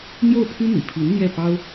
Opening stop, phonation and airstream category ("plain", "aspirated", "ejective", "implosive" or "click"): aspirated